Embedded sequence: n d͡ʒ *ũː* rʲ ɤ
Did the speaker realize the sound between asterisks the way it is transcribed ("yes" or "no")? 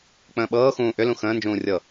yes